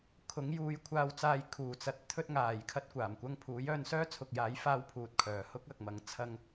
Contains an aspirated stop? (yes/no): yes